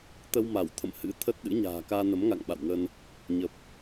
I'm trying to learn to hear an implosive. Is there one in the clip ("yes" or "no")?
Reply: yes